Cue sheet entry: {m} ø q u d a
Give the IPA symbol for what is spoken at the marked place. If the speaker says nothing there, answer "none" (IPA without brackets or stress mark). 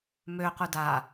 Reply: m